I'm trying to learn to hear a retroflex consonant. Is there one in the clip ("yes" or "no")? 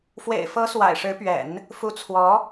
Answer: yes